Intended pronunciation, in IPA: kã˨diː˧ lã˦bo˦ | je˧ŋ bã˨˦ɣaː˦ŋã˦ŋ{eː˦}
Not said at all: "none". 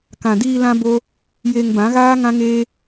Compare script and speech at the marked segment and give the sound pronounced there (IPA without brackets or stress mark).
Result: eː˦